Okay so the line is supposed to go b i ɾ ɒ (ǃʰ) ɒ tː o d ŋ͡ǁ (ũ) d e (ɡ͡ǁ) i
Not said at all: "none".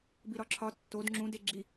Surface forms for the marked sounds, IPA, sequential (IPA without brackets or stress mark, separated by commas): ǁʰ, ũ, ɡ͡ǁ